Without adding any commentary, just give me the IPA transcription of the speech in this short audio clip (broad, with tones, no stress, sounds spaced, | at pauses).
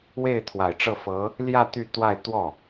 w e˥˩ ɪ̯ t̪ʰ w a˨˩ ɪ̯ ʈ͡ʂ ɤ˥˩ f ɤ˧˥ | l j ä˥˧ t̪ y˥˧ t̪ w a˥˧ ɪ̯ t̪ w ɔ˥˩